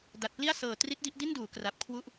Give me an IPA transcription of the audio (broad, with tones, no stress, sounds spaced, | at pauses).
d a˨˩ t̚ p l i˥˩ a̯ s ɤː˨˩ t r i˦˥ t̚ d i˦˥ ʔ d i˥˩ n d uː˩˦ k r a˨˩ p̚ kʰ w u˦˥ ʔ